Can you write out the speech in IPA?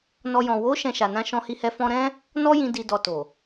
n ɔ˧ j ɔ̃˨ w o˨˦ ʃ ɛ̃˧ ʃ a˨ n ã˧ ʃ ɔ̃˧ h i˧ h ɛ˧ f ɔ̃˧ ɾ ɛ̃˦ | n ɔ˦ j ĩ˧ d i˨ d ɔ˨ t o˨

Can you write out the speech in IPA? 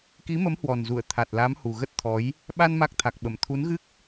k i˨˦ m ə˨˦ m h w ɔ˨˩ n z u˧˩ ə̯ t̪ʰ a˨˩ t̚ l a˨˦ m h u˨˩ ɣ ə˦˥ t̚ t̪ʰ ɔ˨˦ j | ɓ a˧ n m a˦˥ k̚ t̪ʰ a˨˩ k̚ ɓ ə˧˩ m t̪ʰ u˨˦ n ɣ ɨ˦˥ k̚

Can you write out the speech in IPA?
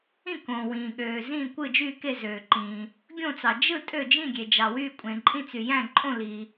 ĩ˥˨ k õː˩ w ĩː˩ ɠ øː˩ z ĩː˥˨ kʷ ɯ˥˨ d͡ʒ yː˥˨ k e˥˨ z øː˩ ǃ ĩː˩ | ɡʲ õ˥˨ t͡s ɑ˩ d͡ʒ ɯ˥˨ tʼ ø˥˨ d͡ʒ ĩ˥˨ ɡʲ e˩ d͡ʒ ɑ˩ w yː˥˨ kʷʼ ẽ˩ ǃʼ ĩ˥˨ t͡s y˩ j æ̃˥˨ ǃʼ õ˥˨ l i˩

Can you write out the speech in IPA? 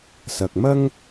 s ɐ˨ k̚ m ɐ˥ ŋ

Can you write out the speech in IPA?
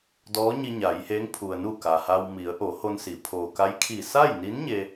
d ɔː˧˥ ɲ i˧ ɲ a˩˧ j h e˧˥ ŋ pʰ u˩ ə̯ n u˧˩ k a˩ h a˧ w m i˩˧ ə̯ ʔ o˩˧ h o˧ n s i˩˧ pʰ oː˩ k a˧˥ j kʰ i˧˩ s a˥˨ j n i˧˥ n ɲ e˧

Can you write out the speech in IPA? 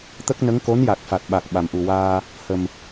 t̪ ə˦˥ k̚ n ə˧˥ ŋ k o˧˥ n j a˨˩ k̚ f a˨˩ t̚ ɓ a˨˩ k̚ ɓ a˨˩ m ʔ u˨˩ w aː˧ | h ə˨˩ m

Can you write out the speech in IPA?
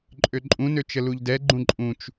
ǃʼ ø ǃʼ ũ n ø t͡ʃ ə l u ʎ d ɛ ɡ͡ǃ ũ ǃʼ ũ t͡ʃ

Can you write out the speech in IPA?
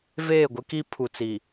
v eː˦˨ ɡʷ ɪ˦ k i˦ pʰ u˨ t͡s i˨

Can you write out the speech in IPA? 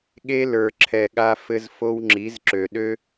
ɠ e˦ l ə˞˨ ǁʰ ɛ˨ ɠ a˦ f ɘ˦ z f o˦ w ŋ͡ǁ i˨˦ z ǁ ø˨ ɗ ø˦

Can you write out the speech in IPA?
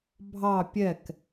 bʱ ɑ pʲ ɛ k

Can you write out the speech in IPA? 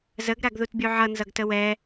z ə ɡ ɾ a ɡ ð u t bʲ u ʕ ʌ n z ʌ ɡ t ə w ɛ

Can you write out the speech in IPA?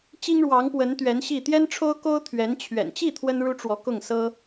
t͡ɕ i˥ ŋ ɻ w ɑ˧˥ ŋ p w ə˧˥ n t̪ ɥ ɛ˧˥ n ɕ i˥˩ t̪ j ɛ˥ n ʈ͡ʂʰ o˥ ʊ̯ k o˥ ʊ̯ t̪ʰ ɥ ɛ˧˥ n t͡ɕʰ ɥ ɛ̰˨˩ n t͡ɕ i˥˩ t̪ʰ w ə˥ n ɻ u˥ ʈ͡ʂ w ɔ˧˥ k ʊ˥˩ ŋ s ɤ˥

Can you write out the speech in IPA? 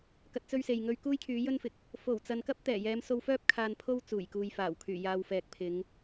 k ɐ˧ t̚ t͡s ɵ˥ ɥ s e˨ j ŋ ɵ˧ ɥ k uː˥ j kʰ yː˨˥ j ɵ˥ n f ɪ˨ k̚ | f o˨˩ w t͡s ɐ˨ n k ɐ˥ p̚ t̪ ɛː˨˩ j ɛː˨˧ m s o˧ w f œː˥ p̚ kʰ aː˧ n pʰ o˥ w t͡s uː˨˩ j k uː˨ j f aː˨˩ w kʰ yː˨˩ j aː˨ w f ɛː˨ k̚ pʰ ɪ˨˧ ŋ

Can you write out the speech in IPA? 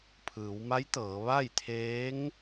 pʰ ɯː˩˧ w m a˧˥ j t̪ ɤː˩˧ ʋ a˥˨ j t̪ʰ eː˧˥ ŋ

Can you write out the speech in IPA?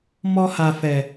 m ɔ˧ h a˨ f ɛ˨

